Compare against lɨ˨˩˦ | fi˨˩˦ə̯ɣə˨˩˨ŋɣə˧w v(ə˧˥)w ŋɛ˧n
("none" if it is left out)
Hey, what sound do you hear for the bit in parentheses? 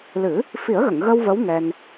ə˧˥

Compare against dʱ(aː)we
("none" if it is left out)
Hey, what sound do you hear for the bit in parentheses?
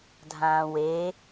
ãː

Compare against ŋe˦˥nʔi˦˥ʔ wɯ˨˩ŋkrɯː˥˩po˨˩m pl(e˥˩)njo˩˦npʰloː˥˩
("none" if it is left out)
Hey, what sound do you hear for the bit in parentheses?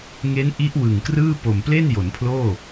e˥˩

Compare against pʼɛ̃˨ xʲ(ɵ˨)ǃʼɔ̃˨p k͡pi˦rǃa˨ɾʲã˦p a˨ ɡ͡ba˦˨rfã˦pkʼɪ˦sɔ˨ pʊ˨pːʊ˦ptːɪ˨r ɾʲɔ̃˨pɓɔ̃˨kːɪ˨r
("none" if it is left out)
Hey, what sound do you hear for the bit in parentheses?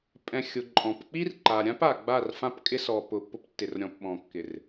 ʊ˨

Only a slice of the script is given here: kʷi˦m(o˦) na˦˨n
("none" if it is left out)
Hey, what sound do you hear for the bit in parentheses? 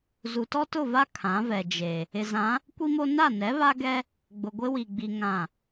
o˦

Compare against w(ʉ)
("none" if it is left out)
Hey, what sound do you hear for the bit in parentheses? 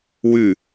ʉ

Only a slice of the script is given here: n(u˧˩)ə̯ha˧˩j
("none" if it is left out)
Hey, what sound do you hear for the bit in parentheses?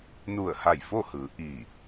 u˧˩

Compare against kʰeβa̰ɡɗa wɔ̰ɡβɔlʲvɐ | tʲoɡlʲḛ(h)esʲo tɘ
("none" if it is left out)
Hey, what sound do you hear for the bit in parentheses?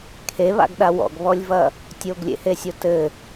h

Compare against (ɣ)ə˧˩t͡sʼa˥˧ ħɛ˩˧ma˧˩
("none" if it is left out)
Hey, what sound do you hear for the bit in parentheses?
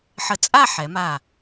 ħ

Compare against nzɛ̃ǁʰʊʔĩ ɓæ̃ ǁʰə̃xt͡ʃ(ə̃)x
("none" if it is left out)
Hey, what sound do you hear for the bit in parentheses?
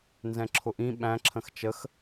ə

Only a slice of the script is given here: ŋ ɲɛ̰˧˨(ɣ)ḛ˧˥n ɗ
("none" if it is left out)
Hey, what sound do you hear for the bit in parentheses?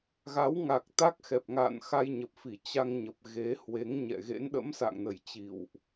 ɣ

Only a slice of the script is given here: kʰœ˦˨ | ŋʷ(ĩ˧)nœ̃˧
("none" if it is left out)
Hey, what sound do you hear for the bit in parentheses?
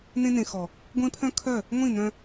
ĩ˦˨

